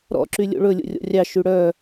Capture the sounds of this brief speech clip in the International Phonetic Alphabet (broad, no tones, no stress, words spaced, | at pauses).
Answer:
ɾɔ̰ ǁylʲo̰ɭɵ lʲo̰rʲɔ̰rʲɑ ʃyɽœ